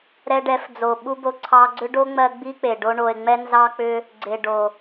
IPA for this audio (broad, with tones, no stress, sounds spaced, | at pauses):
ɾ ɛ˧ ɖ ɛ˨˦ f d͡z o˨ ɓ u˦ b o˧ ǀʰ ɑ˧ ɡ͡ǀ ʏ˦ ɖ o˦ ŋ͡m ɜ˧ ɡ͡b i˦ k͡p e˨ ɖ o˧ ɳ o˨ e̯ ŋ͡m ɛ˦ n z ɑ˦ k͡p ʏ˦ | ɡ͡ǀ e˨ ɖ o˨